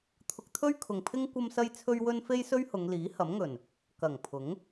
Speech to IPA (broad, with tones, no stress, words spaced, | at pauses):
t̪ʰʊ˧k̚t̪ʰɵ˥ɥkʰʊ˨ŋpʰɪ˥ŋ kʷɐ˥msɐ˥jt͡sʰɵ˥ɥwɵ˥n fe˥jsɵ˥ɥhʊ˨˧ŋ liː˨˥hɐ˨˥mŋɵ˨˩n | kɐ˨˩ŋpʰʊ˨˥ŋ